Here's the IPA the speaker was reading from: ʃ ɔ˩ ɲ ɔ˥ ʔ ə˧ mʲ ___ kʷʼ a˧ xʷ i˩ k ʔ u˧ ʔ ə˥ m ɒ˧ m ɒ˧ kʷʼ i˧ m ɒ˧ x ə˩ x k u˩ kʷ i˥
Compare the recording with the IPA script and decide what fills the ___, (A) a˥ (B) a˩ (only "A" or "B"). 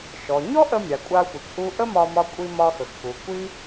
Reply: B